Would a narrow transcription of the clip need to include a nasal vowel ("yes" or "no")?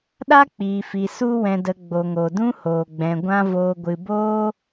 yes